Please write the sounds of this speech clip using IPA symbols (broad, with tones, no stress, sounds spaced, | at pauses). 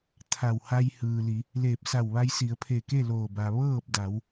t̪ʰ a˧˩ w h a˧ j h ɯː˩ l i˩˧ | l eː˧˩ p̚ s a˧˩ w ʋ a˧ j s i˩˧ ə̯ pʰ e˧˩ k e˥˨ l oː˧˩ b a˩ ʋ ɤː˥˨ p̚ d a˩˧ w